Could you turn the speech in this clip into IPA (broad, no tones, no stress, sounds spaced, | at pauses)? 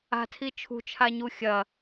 a̤ tʰ i t͡ʃʰ ṳ t͡ʃʰ a ɲ u xʲ ɐ